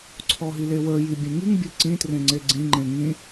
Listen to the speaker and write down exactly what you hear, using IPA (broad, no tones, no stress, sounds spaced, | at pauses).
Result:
ǀʰ ɔ ɦ i l e w ə˞ j i bʲ ẽ ŋ i ŋ bʲ ɘ ǀ ĩ t r ẽ ŋ͡ǀ e ɡ͡ǀ ĩ ŋ͡ǃ ẽ ŋ ĩ